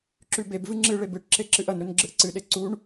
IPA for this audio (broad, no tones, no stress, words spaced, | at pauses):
ǁʉbebvɨ ŋ͡ǁɨɭeb ɨʈǁe ǁɨʔɐnɾɵn ɡ͡ǁɨʔǀɨɗe ǀuɳ